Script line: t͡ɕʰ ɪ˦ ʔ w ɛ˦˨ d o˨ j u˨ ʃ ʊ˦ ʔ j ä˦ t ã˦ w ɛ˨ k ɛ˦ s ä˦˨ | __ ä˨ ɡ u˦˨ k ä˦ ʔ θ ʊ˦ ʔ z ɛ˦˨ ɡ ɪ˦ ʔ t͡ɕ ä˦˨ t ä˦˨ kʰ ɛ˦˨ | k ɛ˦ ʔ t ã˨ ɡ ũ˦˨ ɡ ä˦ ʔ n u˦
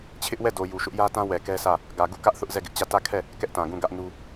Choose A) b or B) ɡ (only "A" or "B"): B